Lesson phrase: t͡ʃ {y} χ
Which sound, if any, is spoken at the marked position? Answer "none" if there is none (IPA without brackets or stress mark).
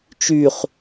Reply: y